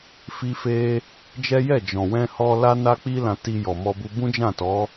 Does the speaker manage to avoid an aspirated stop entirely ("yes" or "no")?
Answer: yes